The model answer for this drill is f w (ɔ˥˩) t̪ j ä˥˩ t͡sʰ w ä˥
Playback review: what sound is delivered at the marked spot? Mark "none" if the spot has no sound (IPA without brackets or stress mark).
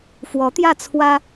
ɔ˧˥